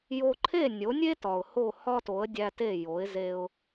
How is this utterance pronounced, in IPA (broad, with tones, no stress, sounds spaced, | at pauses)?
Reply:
j o˧ ǃʰ e˥˩ nʲ o˩˥ nʲ e˥ t ɒ˩ ʊ̯ h o˥˩ h ɒ˥ t o˩˥ ə̯ dʲ æ˧ t e˥˩ j o˩˥ ɪ̯ z e˧ ʊ̯